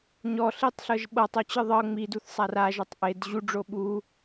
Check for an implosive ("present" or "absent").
present